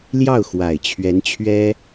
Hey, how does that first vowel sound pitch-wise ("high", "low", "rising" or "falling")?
falling